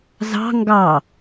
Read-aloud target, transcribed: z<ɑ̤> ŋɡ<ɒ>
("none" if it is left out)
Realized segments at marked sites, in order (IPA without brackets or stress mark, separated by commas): ɑ̤, ɑ